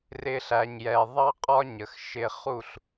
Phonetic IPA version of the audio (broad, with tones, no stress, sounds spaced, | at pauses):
r ɪ˧ ɬ æ˨ ɲ j ɛ˨ ðˤ ɑ˦ qʼ ɒ˦ ɲ ə˨ x ʃ ɪ˧ χ u˦˨ ɬ